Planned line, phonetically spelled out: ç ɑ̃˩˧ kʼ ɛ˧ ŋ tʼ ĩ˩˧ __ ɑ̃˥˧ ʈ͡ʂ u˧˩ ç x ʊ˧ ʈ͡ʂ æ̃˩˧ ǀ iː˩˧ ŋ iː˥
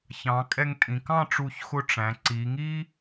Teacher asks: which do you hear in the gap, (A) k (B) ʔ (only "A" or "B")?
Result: A